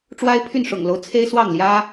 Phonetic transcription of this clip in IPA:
ʈ͡ʂ w a˥ ɪ̯ pʰ y˥˩ n ʂ ʊ̰˨˩ ŋ l o˦ ʊ̯ t͡sʰ e˥ ɪ̯ s w ɑ˥˩ ŋ l j ä˥

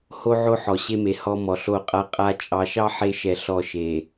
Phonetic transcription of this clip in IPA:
h o˦ ʕ o˦ ħ ɔ˨ ɕ e˦ m e˨ h ɔ˦ m ɔ˨ ɬ o˦˨ qʼ a˦ qʼ a˦ t͡ʃʼ ɑ˨ ʃ ɑ˦ ħ e˦ ʃ ɛ˨ ɬ ɔ˦ ʃ e˨

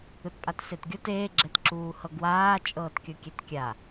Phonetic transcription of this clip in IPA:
ɯ t pʼ a t s e t ɡʲ o t eː ɡ͡ǁ ɛ t ǁ uː h ɤ ɡ w aː t͡ʃʼ ɤː t kʲ ɤ kʲ ɛ t kʲ a

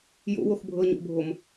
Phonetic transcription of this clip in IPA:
j o̰ w o x bʱ ɤ ɲ o̰ bʱ o m

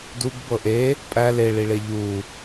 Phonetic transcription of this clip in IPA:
d u ɡ b ɤ ʔ e | pʼ æ l e ɭ i ɭ e ʎ u

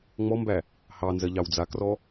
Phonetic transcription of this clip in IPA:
ŋ͡m ɔ m b æ | h ɑ n z ɜ ʎ ɑ w d͡z a k r ɔ

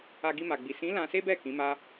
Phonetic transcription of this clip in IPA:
a˧ ɡ i˧ m a˨ ɡ͡b i˨ s ĩ˨˦ l ã˧ s e˦ b ɛ˦˨ k ĩ˨˦ m a˦

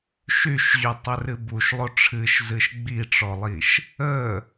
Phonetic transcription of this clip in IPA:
ʃ y ʃ ʑ y tˤ ə r ɨ b u ʃ lˠ o ʈ͡ʂʰ ɨ ʃ z ɨ ʃ ɡ͡b i ʈ͡ʂ ɔ lˠ i ʃ | ə

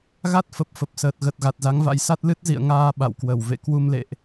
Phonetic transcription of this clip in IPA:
ɣ a˦˥ t̚ f ə˨˩ p̚ f ə˨˩ p̚ s əː˨˩ t̚ ɣ ə˨˩ t̚ ɣ a˨˩ t̚ z a˨˦ ŋ v a̰˧˥ j s a˦˥ t̚ l ɨ˦˥ t̚ z ḭ˧˨ ə̯ ŋ aː˧ ɓ a̰˧˨ w k w ə˧˩ w v ḛ˧˨ k w u˧ m l ḛ˧˨ ʔ

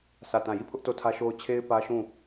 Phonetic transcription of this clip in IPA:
sʰ ä˦˨ t ã˦˨ j i˦˨ pʰ ʊ˦ ʔ t o˦˨ tʰ ä˦ ʃ o˦ ʊ̯ t͡ɕʰ e˦ ɪ̯ p ä˦ ʃ ũ˦˨

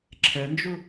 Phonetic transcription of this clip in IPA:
ǁʰ ɛ n d͡ʒ u

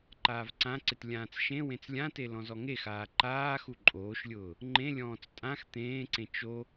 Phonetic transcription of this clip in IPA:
ǃ aː v ǀ ã ǀ ɪ t lʲ ãː t͡s ʃ ẽ w ẽ t͡s lʲ ã t e l ɔ̃ z ɔ ŋ e x aː ǃ aː x u ǃʼ oː ʃ lʲ ʊː | ŋ͡ǃ ẽ lʲ ɔ̃ː t͡s tʼ ã x t̪ ẽː ǀ ẽ t͡ʃ o

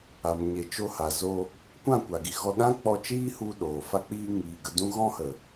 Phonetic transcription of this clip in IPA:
a˨ m ɲ e˨ t͡ʃ o˧ h a˨ z o˧ | kʷ ã˦˨ kʷ a˨ ɡ i˨ ɣ ɔ˧ ɗ ã˦ k͡p ɔ˧ t͡ʃ iː˦ h u˧ ɗ oː˨ f a˧ k͡p iː˧ ŋ iː˨ ɡ ə˧ d ũ˦ ɣ ɔ̃˦ h ə˨

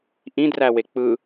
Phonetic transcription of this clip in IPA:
ʔ ĩ d r æ w e k͡p ɯ

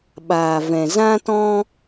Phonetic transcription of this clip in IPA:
ɓ aː˨ v ɛ̃˨ z ã˦ t ɔ̃˦

